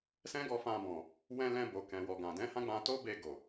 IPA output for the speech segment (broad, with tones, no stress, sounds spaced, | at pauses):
s ɛ̃˦ ɡ ɔ˧ f ã˧ b ɔ̃˨ | w ɛ̃˧ l ɛ̃˧ b o˨ k ɛ̃˨ w ɔ˨ ɡ ã˨ d ɛ̃˨˦ h ã˦ ɡ͡b ã˧ t o˦ b e˧ ɡ o˨